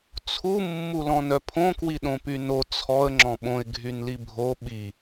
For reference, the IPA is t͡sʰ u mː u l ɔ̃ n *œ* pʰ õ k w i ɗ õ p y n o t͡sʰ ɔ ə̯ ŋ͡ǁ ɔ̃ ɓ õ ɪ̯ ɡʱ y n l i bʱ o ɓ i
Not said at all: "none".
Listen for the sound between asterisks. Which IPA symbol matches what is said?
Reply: œ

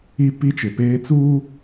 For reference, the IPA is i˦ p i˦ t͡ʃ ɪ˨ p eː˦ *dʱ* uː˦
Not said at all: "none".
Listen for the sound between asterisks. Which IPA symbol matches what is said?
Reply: t͡s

